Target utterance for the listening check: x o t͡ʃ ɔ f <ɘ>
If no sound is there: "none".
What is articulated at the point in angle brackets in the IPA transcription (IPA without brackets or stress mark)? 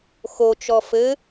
ɘ